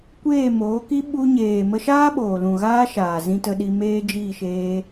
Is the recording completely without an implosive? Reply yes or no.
no